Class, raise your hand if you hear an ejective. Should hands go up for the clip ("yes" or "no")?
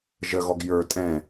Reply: yes